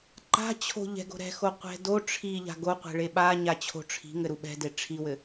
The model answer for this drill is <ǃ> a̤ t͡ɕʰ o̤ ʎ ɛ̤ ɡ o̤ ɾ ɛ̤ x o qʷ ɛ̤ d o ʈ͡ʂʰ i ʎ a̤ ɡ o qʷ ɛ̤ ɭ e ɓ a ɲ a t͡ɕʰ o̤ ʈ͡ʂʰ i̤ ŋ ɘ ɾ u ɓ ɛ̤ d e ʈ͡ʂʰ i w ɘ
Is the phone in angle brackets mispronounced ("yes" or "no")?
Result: no